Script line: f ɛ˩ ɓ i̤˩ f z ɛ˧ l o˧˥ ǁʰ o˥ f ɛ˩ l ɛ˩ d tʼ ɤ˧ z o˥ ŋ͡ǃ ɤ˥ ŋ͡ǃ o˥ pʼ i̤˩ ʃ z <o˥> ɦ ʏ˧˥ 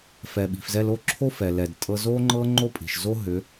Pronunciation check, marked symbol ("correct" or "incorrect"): correct